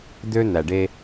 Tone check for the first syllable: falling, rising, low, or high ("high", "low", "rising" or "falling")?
high